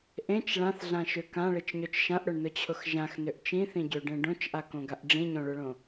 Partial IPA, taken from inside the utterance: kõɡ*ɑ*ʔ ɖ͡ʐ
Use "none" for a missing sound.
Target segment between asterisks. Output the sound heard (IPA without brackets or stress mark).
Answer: a